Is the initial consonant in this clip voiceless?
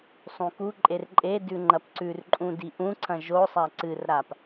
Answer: yes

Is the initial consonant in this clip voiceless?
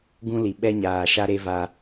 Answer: no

